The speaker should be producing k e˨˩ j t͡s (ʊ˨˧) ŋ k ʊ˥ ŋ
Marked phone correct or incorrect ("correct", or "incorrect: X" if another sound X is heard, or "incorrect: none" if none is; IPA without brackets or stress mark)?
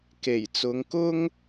correct